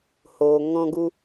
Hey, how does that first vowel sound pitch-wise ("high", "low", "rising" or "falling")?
low